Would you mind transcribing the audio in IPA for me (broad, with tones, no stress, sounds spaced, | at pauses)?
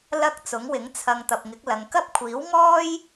l ɐ˧ k̚ t͡s ʊ˨˥ ŋ w ɪ˨˥ ŋ t͡sʰ ɐ˧ ŋ t̪ ɐ˨ p̚ ŋ ɪ˨˥ k̚ l ɐ˨˧ ŋ k ɐ˥ p̚ kʷʰ iː˨˥ w ŋ ɔː˥ j